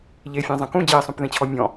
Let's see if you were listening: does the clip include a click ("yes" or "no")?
no